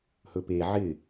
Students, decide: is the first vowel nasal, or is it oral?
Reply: oral